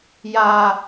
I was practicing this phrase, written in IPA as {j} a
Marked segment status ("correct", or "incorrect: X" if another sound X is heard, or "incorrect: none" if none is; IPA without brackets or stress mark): correct